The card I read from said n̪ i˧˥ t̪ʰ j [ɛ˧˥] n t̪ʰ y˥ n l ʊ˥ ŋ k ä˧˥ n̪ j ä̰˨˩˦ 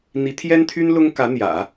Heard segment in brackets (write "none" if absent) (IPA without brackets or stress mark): ɛ˥